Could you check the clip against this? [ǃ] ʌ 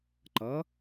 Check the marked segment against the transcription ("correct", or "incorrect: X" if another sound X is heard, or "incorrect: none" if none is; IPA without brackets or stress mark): correct